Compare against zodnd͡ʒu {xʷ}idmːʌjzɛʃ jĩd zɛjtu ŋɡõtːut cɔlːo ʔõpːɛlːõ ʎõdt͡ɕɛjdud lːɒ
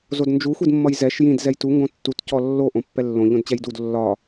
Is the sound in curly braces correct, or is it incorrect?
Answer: correct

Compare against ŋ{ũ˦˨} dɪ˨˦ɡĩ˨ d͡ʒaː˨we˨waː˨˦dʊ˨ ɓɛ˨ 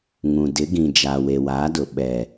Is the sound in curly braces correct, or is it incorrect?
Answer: incorrect: ũ˨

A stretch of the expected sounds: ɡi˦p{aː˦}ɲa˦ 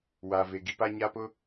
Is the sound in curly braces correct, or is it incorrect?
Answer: incorrect: a˦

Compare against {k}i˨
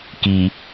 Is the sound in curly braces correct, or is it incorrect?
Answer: correct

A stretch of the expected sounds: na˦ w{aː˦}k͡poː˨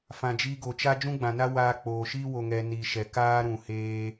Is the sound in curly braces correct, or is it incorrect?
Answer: incorrect: aː˧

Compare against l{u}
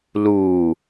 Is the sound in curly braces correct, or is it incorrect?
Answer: incorrect: uː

